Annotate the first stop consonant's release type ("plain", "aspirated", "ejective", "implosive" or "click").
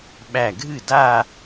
implosive